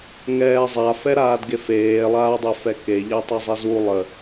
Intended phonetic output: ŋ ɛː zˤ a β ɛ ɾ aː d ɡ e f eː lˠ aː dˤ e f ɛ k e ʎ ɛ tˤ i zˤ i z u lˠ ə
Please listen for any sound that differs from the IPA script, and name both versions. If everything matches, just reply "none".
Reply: β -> f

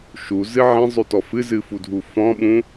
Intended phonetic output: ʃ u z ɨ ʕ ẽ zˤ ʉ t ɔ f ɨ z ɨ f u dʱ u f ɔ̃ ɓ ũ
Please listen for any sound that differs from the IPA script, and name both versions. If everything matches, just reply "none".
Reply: none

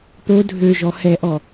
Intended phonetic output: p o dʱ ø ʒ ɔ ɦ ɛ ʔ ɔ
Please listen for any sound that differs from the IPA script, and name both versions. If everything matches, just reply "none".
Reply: ɦ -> h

